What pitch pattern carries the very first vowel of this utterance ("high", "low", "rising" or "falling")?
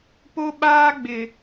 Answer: high